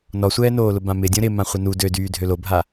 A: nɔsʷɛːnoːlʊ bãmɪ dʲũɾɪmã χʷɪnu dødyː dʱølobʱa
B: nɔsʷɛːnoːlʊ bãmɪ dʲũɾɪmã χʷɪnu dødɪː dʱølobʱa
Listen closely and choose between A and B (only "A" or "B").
A